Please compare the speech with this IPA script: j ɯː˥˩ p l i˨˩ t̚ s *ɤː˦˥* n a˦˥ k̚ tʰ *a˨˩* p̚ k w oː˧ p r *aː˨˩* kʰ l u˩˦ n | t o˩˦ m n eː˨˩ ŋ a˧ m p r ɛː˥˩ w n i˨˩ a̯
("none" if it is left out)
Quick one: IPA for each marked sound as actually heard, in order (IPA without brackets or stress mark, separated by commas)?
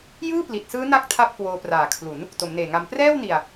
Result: ɯː˦˥, a˥˩, aː˨˩